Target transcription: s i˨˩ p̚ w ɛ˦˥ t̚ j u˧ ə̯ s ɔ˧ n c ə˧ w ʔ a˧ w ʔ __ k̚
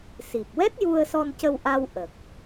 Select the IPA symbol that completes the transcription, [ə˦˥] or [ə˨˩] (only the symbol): ə˨˩